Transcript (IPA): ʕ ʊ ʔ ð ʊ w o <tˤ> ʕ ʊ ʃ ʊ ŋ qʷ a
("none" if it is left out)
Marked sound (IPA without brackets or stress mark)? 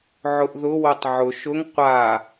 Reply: tˤ